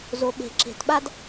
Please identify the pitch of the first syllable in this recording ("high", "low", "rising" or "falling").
low